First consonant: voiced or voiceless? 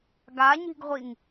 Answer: voiced